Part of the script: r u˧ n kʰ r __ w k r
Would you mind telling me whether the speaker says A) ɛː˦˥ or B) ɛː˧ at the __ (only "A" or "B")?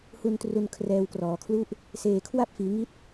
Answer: B